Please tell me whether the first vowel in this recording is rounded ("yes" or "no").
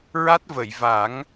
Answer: no